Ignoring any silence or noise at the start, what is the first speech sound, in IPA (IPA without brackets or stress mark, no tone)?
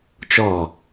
t͡ʃ